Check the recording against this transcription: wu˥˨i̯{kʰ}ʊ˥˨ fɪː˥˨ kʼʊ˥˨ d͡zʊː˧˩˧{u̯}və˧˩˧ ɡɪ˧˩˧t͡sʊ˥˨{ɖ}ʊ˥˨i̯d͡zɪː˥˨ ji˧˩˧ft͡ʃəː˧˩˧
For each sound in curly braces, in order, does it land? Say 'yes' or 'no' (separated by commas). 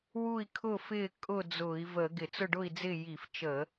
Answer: yes, no, yes